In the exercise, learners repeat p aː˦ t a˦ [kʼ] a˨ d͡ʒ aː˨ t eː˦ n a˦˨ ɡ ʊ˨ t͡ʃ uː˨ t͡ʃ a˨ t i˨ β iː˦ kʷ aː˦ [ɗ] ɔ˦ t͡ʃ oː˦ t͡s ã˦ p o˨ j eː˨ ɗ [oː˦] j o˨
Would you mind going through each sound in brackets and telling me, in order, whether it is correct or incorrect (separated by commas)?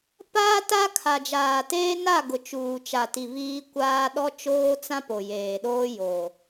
incorrect, correct, correct